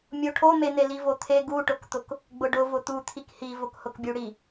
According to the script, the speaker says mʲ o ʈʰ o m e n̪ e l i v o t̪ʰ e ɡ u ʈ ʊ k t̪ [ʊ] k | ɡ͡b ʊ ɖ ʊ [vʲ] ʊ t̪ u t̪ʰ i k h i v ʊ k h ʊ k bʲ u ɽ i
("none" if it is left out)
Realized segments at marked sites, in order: ʊ, v

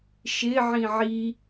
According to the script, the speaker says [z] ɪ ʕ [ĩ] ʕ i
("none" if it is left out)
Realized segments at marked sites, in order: ʃ, ĩ

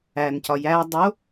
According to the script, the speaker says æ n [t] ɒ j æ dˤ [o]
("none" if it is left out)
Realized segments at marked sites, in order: c, o

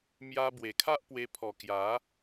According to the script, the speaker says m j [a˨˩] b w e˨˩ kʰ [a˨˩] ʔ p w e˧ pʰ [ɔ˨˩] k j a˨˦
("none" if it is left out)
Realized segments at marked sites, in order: a˧, a˦, ɔ˨˩

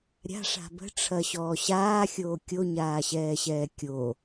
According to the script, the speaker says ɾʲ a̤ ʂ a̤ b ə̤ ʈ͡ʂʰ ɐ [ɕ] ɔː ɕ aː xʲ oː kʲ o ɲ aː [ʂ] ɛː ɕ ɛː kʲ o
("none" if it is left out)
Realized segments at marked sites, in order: ɕ, ɕ

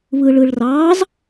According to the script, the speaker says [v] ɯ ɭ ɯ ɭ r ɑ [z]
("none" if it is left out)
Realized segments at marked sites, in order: β, z

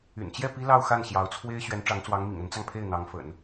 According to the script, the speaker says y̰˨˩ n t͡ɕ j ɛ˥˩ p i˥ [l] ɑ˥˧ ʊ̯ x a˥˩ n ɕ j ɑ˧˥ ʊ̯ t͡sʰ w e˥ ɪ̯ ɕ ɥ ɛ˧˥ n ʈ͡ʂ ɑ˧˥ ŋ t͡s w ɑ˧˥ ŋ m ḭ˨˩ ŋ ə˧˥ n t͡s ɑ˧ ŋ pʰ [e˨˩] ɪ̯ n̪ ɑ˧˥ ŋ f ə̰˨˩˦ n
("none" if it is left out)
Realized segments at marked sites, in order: l, e˥˩

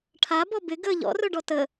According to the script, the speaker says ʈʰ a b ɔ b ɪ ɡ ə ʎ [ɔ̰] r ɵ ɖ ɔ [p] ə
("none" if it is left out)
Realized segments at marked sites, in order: ɔ̰, t

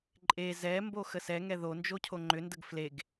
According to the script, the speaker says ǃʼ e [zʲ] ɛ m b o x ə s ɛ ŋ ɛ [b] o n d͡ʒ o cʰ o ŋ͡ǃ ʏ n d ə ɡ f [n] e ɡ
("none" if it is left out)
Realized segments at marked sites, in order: z, ð, l

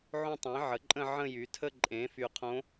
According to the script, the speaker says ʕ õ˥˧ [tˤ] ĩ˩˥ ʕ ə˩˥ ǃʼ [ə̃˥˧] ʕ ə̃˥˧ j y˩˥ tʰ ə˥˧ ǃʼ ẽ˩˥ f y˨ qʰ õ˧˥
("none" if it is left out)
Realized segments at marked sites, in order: tˤ, ə̃˥˧

